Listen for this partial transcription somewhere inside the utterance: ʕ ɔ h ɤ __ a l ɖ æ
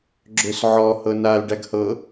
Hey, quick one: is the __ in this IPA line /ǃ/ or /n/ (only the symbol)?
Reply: n